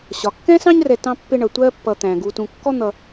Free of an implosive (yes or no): yes